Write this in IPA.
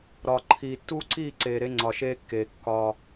ɾ ɒː˨ ǃʰ iː˨ tː uː˦ ǀ iː˦˨ ǀ eː˨ ɾ e˦ ŋ͡ǀ ɒ˨ ʃ eː˦ kː eː˨ kː ɒː˦

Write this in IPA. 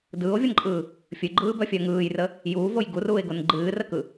d ɯː o̯ vʲ ʌ n ǃʼ ɯː | fʲ ɨ ɡ͡ǃ ɯː b œ fʲ œ ŋ ɯː j r ə | j uː v o j ɡ u r uː e̯ ɡ o n ɡ͡ǃ ɨː r ə k ɯ

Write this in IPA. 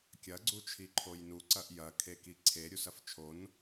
kʲ ɐ ɡ͡ǀ u t͡ʃʰ i ǃʰ o j n u ǀ ɐ ʔ j ɐ kʰ e k i ǀʰ e ɾʲ u s ɐ f t͡ʃʰ o n

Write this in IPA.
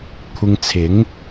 kʷʰ ɪ˧ ŋ t͡sʰ ɪ˨˥ ŋ

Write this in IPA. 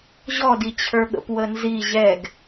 ʑ ɔ d i t͡ɕʰ ə˞ ɠ ə̰ p w ə n z i ʑ ɛ ɡ

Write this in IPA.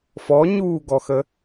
f ɔ ɲ uː ɡ ɔ x ə

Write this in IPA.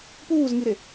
p uː z ŋ i ɾ e

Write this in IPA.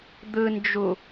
d̪ ɯ n d͡ʒ u

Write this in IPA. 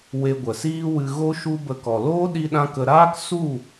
w e˧ ɡʷ ə˨ s iː˦ w ɨ˧ ɣ o˦ ʃ u˦ b ə˧ k ɔ˨ l oː˦ ɗ i˦ ɗ ã˦ k ə˧ ɾ aː˦ k s u˦˨

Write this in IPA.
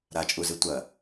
ɾ a t͡ʃʼ u z ɨ tʷ ɐ

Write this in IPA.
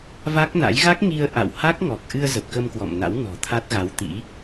v a˦˥ k̚ n a̰˧˥ j ɣ a˦˥ k̚ ŋ i˧ ə̯ ʔ a̰˧˨ w h a˦˥ k̚ ŋ ɔ˨˩ k̚ ʔ ɨ˧ ə̯ z ə˨˩ p̚ k ə˧ m k w ɔ̰˧˨ m n a̰˧˥ w n ɔ̤˨˩ t̪ʰ a˦˥ t̚ ɣ a˨˦ w t̪ ḭ˧˥

